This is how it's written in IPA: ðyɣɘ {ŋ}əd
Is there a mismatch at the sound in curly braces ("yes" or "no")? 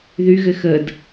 yes